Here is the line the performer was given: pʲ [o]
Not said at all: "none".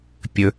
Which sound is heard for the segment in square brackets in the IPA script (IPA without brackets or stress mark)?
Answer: ɵ